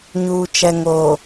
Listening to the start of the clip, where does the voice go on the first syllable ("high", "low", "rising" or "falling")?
low